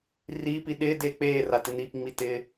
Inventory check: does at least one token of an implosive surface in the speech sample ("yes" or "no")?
yes